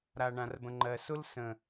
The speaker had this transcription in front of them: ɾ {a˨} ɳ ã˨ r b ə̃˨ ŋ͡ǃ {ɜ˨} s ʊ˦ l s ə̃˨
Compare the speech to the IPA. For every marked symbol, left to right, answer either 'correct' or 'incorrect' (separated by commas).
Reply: correct, correct